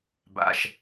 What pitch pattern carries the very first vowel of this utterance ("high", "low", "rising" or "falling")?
low